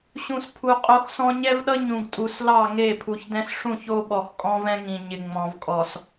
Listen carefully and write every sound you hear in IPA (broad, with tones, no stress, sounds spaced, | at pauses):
ɕ ũ˨ s pʰ u˨ qʼ o˦ x s ɔ̃˦ ɲ ɛ˦ v ɗ ʌ˦ ɲ ũ˨ ɡ tʼ u˨ s l ɑ˦˨ ŋ e˦˨ pʰ u˨ ç d ɛ̃˦ s ʂ ũ˦˨ ç o˦ ɓ ɔ˨ x kʼ ɔ̃˦ v ɛ̃˦ ŋ ĩ˨ ɲ ɪ˨ ŋ͡m ɔ̃˨ v kʼ ɔ˨ s